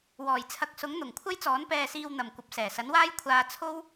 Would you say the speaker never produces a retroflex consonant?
yes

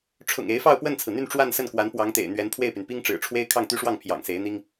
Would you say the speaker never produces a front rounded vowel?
no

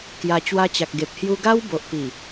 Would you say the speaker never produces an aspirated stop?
yes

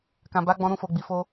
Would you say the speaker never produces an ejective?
yes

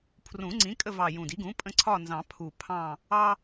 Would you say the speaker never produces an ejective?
no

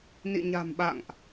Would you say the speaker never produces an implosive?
no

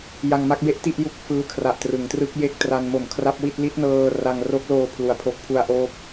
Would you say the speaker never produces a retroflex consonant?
yes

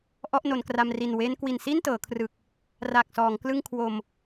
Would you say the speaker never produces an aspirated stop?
no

